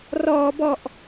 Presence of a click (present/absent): absent